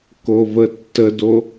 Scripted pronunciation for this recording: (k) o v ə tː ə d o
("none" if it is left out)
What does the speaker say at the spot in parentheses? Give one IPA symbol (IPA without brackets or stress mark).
k